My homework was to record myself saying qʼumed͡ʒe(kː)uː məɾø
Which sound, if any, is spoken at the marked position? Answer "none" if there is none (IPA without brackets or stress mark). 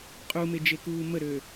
k